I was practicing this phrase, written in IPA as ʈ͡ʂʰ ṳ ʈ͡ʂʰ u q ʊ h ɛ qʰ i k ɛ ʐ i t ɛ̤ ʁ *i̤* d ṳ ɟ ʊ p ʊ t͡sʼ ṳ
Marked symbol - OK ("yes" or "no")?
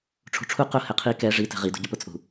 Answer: no